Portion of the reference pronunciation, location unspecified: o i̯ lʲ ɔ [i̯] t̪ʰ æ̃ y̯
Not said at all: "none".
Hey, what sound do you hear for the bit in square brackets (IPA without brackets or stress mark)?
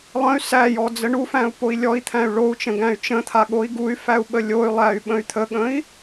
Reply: i̯